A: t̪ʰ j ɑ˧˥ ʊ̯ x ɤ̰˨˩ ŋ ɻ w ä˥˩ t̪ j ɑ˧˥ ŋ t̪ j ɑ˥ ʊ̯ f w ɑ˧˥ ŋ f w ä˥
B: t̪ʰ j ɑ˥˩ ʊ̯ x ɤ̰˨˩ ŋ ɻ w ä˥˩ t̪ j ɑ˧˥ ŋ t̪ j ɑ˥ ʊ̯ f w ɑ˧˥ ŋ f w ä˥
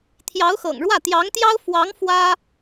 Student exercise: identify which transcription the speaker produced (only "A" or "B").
A